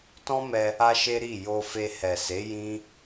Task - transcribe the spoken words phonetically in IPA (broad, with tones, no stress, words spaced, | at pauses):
tɔ̃˦mɛ˧ | a˦ʃe˦ɾi˦˨ jo˧fe˧ hɛ˨se˨˦ jĩ˦